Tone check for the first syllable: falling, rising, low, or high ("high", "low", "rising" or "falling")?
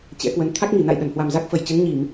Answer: rising